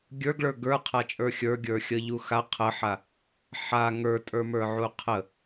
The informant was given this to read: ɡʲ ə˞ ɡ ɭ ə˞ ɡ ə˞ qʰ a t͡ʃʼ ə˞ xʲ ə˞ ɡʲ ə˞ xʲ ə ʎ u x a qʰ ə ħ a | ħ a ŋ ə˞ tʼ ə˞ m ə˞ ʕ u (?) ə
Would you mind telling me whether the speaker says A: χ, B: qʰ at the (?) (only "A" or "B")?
B